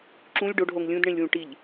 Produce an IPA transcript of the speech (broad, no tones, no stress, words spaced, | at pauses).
ǁũlʲ ɖoɖɦoŋ lʲũdɳẽlʲwũ ʈiʎ